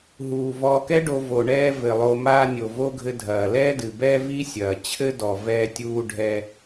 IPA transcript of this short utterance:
ɦ uː˩ v ɔː˨ k ɛ˥ ɖ o˨ v o˩ ɳ ɛː˦ v ɘ˩ lˠ o˨ m aː˦ nʲ o˩ v o˥ ɡʱ ɘ˦ dʱ ɐː˩ l ɛː˦ d ɨ˩ b ɛː˦ v i˥ sʲ ɐː˩ t͡ɕʰ ɘ˥ d ɔ˩ v ɛː˦ tʲ uː˦ ɖʱ ɛː˦

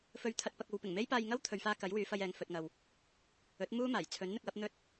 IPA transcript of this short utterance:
f ɵ˧ ɥ t̪ʰ ɐ˧ t̚ p ɐ˧ k̚ o˨˧ w p ɪ˨˩ ŋ m e˥ j p aː˧ j ŋ ɐ˥ w t̪ʰ ɵ˨ ɥ f aː˧ k ɐ˨˥ j w yː˨˧ f ɐ˧ j ɛː˨ ŋ f ɵ˨ t̚ ŋ ɐ˨ w | ɵ˨˥ t̚ m uː˥ m aː˨˩ j t͡sʰ ɵ˨˥ n n̪ ɪ˧ k̚ w ɐ˨˥ p̚ n̪ ɵ˥ t̚

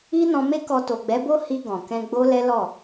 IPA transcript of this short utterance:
i˦ n ɔ̃˧ m e˦ k ɔ˧ t o˨ ɡ͡b ɛ˨˦ b o˦ h i˧ ɡ ɔ̃˨ k ɛ̃˧ ɡ͡b o˦ l ɛ˦ l ɔ˦˨

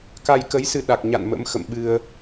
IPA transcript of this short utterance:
k a˧ j k ə˨˦ j s ɨ˧ ɗ a˨˩ k̚ ɲ a̰˧˨ n m ə̰˧˥ m x ə̰˧˨ m ɓ ɨ˧ ə̯

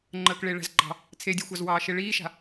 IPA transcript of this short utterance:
ŋ͡ǃ əː k ɭ e ɭ æ̤ z ɡ͡ǃ ɑ̤ | t͡sʰ e dʲ æ xʷ ɑ z w ɑː ʃ e ɭ iː ʃ a̤

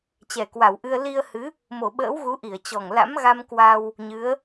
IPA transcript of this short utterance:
t͡ɕ ɛ˨˩ k w a˧˩ w ʔ ɨ˧ ə̯ l i˧ ə̯ h ɨ˨˦ | m o˧˩ ɓ ə̰ː˧˥ w ɣ u˨˦ ʔ i˧˩ ə̯ t͡ɕ ɔ˨˩ ŋ l a̰˧˥ m ɣ a˧ m k w a˧ w | ɲ ɨ˨˦ ə̯

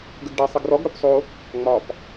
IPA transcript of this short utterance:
ɡ ə ɡ ɖ e sˤ ɪ ɡ r ɔ ɡ ɽ o p sˤ o | ŋ͡m ɒ p

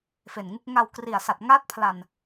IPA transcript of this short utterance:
f e˨˩ n ŋ u˦˥ k̚ ŋ a˧ w k r i˨˩ a̯ s a˨˩ t̚ ŋ aː˦˥ t̚ pʰ l a˨˩ n

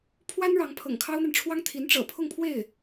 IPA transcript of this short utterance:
pʰ w a˥ n ɻ ɑ˧˥ ŋ pʰ ɤ̰˨˩ ŋ kʰ ɑ˥ ʊ̯ n̪ a˨ n ʈ͡ʂʰ w ɑ˥ ŋ t̪ʰ i˧˥ n ʈ͡ʂ ɤ̰˨˩ pʰ ʊ˥˧ ŋ pʰ w e˥˩ ɪ̯

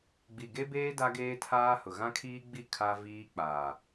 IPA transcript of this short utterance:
ɡ͡b i˨ ɡ e˦ b eː˦ d a˦ ɡ eː˦ tʰ aː˦ h ʊ˨ ɣ ã˦ kʰ iː˦ ɡ͡b i˦˨ kʰ a˦ v iː˦ k͡p aː˨

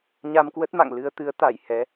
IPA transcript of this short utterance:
ɲ a˧ m k w ə˦˥ t̚ m a̰˧˨ ŋ l ɨ˧ ə̯ t̪ ɨ˨˦ ə̯ t̪ a˧˩ j h ɛ˨˦

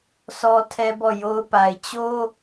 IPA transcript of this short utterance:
s ɔ˦ tʰ ɛ˦ b ɔ˦˨ j o˦ ʊ̯ p a˨ ɪ̯ t͡ɕ o˦

